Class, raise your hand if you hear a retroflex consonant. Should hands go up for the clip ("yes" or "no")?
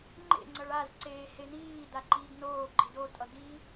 yes